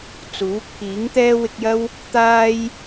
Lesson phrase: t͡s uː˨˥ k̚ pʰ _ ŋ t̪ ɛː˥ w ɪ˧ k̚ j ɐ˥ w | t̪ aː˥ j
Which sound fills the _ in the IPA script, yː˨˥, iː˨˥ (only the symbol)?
iː˨˥